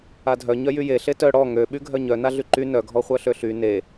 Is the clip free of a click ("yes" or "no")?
no